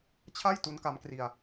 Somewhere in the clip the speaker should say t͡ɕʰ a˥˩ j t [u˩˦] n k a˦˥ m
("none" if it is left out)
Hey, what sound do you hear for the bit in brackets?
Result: u˦˥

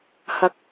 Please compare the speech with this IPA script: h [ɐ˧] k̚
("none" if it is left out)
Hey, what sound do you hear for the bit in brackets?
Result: ɐ˨˥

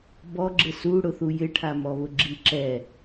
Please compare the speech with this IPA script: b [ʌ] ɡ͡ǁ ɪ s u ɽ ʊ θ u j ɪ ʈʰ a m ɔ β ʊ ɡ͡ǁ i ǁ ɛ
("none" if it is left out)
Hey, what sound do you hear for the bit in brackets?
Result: ɔ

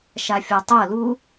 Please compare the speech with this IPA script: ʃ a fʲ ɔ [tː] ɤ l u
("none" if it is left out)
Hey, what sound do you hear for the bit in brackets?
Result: tˤ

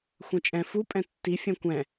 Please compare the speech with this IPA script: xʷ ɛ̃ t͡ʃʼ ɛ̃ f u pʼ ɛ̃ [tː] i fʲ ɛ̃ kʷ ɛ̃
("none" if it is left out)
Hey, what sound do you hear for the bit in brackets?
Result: tː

